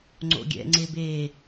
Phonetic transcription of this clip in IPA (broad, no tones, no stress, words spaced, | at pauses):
ŋ͡ǀo̰ɡʲɛ̰ŋ͡ǀebe